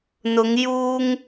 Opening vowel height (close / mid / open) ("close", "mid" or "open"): close